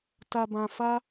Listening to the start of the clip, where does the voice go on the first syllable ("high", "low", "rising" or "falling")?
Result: low